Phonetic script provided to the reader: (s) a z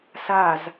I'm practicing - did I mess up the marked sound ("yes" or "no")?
no